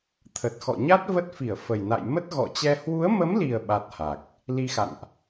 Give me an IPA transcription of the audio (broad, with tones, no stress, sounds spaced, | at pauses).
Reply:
t̪ʰ ə˨˩ t̚ x ɔ̰˧˨ ɲ a˦˥ t̚ v ə˦˥ t̚ f i˧˩ ə̯ f ə˨˩ j n a̰˧˨ j m ə˦˥ t̚ ɣ ɔ̰˧˨ t͡ɕ ɛ˧ h w u˨˦ ə̯ m ə˨˦ m l i˨˩ ə̯ ɓ a˦˥ t̚ h a˨˩ k̚ | l i˧ x a̰˧˨ n ʔ